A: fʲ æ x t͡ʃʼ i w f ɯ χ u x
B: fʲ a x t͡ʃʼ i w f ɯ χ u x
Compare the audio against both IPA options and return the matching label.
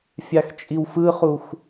B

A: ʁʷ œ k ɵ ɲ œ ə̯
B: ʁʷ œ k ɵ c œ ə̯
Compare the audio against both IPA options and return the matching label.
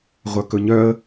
A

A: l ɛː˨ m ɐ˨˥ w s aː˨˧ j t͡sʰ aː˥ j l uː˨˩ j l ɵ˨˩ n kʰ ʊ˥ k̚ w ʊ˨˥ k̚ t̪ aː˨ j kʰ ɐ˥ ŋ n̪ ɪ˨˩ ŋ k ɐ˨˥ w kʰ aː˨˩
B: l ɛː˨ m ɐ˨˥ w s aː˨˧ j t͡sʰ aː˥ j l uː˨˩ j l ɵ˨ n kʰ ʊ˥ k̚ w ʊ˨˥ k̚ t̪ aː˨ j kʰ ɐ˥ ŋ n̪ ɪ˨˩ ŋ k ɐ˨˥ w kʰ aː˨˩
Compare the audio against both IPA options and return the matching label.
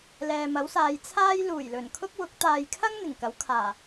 A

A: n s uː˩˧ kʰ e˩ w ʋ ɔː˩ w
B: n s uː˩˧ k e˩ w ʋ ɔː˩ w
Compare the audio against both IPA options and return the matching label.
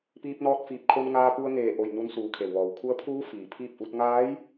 A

